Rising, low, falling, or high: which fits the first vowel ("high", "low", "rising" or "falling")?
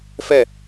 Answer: falling